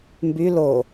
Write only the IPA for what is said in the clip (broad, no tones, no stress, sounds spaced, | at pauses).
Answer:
m b y l o